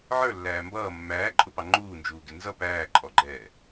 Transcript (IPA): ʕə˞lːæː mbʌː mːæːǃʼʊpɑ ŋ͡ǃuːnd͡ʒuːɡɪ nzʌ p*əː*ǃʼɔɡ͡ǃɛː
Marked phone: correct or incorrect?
incorrect